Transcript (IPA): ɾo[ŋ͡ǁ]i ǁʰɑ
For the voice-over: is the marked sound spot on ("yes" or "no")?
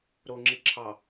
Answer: yes